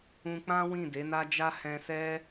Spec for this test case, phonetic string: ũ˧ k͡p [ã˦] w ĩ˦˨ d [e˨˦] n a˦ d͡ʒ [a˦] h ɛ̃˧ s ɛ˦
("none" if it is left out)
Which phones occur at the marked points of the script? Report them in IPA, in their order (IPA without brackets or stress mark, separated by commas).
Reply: ã˦, e˨˦, a˦